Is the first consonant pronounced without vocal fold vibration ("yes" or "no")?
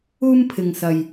no